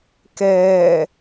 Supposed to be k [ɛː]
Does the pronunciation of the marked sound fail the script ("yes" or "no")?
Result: no